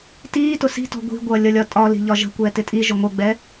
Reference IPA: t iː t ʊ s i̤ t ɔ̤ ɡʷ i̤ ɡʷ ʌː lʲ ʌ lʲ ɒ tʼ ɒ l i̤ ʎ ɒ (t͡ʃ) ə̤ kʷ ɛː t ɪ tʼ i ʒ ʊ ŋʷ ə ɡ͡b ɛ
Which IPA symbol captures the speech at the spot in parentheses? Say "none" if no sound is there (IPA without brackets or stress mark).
ʒ